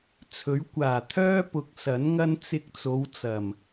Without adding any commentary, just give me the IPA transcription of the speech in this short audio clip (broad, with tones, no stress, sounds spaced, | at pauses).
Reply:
t͡sʰ ɵ˨˥ ɥ kʷ aː˨˩ t̪ʰ œː˥ p ʊ˨˥ k̚ s ɐ˨˥ n ŋ ɐ˥ n t͡s ɪ˧ k̚ t͡s o˨˧ w t͡s ɐ˨˩ m